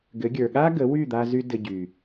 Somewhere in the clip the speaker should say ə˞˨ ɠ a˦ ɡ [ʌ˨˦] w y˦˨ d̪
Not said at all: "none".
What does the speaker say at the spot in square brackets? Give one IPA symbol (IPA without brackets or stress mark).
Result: ə˨˦